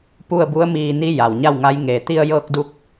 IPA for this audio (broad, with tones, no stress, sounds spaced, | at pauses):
p u˥˨ ə̯ b u˧˥ ə̯ m iː˧ n i˧˥ j a˩ w ɲ a˥˨ w ŋ a˧˥ j ŋ eː˧˩ t̪ i˧ ə̯ j ɤː˧ k̚ d u˧ k̚